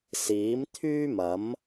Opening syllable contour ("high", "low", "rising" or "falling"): rising